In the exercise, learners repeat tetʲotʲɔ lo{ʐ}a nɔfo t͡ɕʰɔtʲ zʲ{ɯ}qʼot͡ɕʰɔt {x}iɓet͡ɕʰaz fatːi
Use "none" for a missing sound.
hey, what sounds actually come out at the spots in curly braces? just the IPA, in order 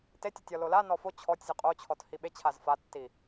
l, ɯ, h

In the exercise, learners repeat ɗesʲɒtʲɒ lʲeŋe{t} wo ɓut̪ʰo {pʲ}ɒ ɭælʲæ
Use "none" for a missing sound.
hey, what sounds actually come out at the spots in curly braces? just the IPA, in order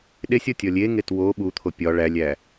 t, pʲ

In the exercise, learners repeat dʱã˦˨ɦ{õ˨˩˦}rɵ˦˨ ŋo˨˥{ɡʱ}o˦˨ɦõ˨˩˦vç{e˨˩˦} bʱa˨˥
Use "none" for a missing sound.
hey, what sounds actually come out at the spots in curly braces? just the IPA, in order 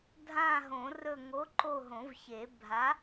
õ˨˩˦, ǃ, e˨˩˦

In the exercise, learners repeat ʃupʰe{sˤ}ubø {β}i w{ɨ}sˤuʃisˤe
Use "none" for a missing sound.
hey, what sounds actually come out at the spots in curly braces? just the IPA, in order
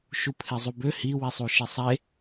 zˤ, h, i

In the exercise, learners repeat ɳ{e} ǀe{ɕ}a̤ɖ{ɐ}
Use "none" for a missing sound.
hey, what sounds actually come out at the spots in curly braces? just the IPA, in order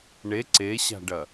e, ɕ, ɐ

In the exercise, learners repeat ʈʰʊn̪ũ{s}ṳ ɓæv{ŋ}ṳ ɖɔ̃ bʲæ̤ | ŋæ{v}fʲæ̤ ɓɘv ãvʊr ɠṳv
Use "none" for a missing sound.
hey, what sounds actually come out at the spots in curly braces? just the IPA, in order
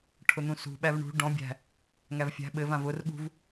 s, ɳ, v

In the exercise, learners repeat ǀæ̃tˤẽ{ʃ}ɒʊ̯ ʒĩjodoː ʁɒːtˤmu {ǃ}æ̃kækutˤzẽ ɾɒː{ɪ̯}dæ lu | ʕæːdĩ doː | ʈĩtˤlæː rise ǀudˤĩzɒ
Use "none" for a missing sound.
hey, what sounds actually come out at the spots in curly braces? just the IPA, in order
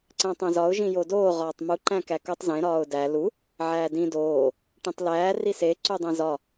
z, ǃ, ʊ̯

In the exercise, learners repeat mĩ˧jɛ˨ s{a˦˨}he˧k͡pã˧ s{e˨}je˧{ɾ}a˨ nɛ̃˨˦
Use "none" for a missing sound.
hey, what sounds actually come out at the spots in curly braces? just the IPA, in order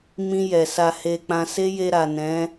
a˧, e˦, ɾ

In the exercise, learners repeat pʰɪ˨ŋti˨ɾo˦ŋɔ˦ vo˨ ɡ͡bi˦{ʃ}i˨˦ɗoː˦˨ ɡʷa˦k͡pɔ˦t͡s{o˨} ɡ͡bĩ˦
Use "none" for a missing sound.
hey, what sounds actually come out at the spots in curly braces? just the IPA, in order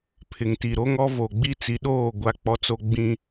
t͡s, o˦

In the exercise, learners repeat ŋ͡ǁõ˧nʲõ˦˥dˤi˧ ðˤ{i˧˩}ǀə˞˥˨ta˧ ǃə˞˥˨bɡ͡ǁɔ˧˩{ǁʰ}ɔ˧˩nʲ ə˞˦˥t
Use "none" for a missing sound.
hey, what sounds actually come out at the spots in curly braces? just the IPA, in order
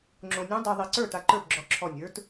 i˧˩, ǁʰ

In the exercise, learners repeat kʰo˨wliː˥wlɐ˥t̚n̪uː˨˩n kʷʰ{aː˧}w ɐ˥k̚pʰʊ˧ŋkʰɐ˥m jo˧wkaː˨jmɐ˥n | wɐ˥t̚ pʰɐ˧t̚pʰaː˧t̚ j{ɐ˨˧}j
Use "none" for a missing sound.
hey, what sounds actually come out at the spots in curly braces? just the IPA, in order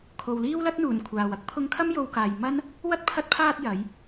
aː˨, ɐ˨˧

